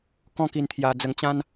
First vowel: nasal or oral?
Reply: nasal